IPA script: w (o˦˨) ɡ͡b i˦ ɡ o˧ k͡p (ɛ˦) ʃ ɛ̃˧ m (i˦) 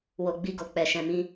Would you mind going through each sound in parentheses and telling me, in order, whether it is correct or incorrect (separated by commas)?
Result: incorrect, incorrect, incorrect